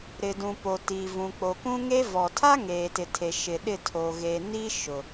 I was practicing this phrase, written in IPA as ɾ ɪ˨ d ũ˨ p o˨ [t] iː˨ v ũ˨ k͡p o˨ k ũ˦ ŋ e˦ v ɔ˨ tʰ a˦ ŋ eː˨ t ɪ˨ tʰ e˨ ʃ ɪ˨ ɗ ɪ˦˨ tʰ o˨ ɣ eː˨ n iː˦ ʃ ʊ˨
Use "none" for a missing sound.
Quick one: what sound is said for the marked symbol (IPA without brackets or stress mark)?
t